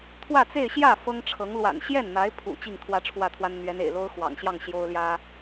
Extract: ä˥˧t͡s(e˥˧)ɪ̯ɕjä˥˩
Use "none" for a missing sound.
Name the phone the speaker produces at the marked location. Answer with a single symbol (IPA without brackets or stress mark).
e˥˧